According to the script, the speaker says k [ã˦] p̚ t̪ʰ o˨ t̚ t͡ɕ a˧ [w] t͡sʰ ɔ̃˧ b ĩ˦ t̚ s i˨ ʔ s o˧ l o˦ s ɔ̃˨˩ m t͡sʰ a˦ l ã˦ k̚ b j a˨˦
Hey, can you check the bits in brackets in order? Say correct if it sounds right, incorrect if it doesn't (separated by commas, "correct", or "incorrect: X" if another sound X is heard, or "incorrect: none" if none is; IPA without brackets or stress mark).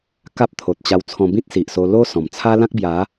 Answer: incorrect: a˦, correct